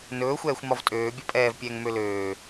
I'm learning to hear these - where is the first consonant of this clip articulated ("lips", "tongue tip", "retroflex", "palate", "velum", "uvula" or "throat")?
tongue tip